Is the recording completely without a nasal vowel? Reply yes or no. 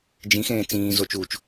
no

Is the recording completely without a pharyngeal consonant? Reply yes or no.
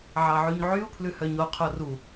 no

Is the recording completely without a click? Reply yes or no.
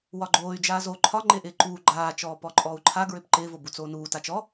no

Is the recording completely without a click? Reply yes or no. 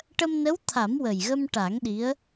yes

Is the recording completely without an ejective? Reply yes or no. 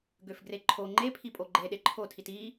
no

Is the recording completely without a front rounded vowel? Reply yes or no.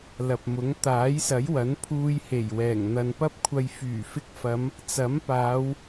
no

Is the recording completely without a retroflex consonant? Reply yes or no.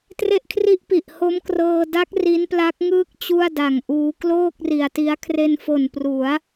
yes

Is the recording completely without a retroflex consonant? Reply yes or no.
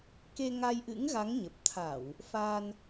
yes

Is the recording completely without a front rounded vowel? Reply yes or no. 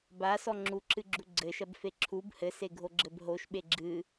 yes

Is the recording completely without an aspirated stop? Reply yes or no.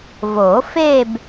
yes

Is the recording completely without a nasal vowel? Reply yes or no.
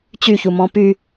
no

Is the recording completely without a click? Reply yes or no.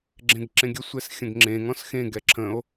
no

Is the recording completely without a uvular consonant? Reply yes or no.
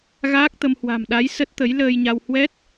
yes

